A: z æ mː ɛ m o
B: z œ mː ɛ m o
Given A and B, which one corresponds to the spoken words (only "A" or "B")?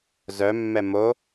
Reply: B